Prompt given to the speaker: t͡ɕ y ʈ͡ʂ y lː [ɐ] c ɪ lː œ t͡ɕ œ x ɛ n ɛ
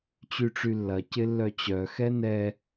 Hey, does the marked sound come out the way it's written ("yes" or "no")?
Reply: yes